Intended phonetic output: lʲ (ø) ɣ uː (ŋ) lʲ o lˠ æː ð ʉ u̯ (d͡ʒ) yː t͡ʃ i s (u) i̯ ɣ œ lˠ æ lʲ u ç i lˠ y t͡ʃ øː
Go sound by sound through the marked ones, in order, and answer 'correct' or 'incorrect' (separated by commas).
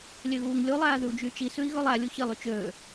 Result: correct, correct, correct, incorrect